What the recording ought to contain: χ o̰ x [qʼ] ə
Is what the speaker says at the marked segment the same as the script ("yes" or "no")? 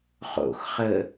no